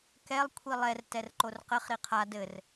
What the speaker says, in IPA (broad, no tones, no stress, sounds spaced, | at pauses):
k ɛ lˠ kʷʰ i lˠ ɛ r t ɛ r ǃ o r q ɘ χ ɾ i qʰ a d ɘ r